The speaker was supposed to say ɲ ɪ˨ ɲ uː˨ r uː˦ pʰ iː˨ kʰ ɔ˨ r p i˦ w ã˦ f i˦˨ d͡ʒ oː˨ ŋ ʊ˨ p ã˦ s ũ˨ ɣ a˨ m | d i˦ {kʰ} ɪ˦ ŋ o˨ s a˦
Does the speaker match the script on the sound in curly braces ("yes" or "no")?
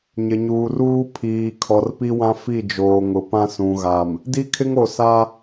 yes